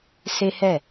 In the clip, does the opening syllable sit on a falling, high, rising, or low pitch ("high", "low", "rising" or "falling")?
high